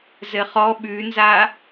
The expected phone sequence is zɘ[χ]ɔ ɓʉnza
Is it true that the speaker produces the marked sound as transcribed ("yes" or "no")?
yes